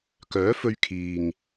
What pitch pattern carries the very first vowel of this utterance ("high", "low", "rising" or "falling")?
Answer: rising